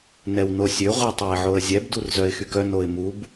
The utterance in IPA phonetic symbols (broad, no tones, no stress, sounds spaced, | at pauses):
n ɛ w n o sʲ ø ʁʷ i tˤ ɛ ɪ̯ ʕ o ə̯ zʲ ɛ b d u r z œ ɪ̯ x y k œ n o ɪ̯ m u b